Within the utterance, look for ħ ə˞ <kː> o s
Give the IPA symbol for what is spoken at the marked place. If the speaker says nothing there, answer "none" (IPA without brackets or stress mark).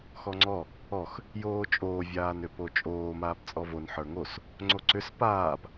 ŋ